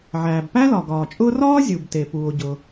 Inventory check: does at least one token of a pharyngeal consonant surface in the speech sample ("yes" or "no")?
yes